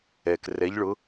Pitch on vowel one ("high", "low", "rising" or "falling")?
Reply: low